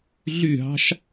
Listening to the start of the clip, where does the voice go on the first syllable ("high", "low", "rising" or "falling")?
falling